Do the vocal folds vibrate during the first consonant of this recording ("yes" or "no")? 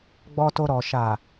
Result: yes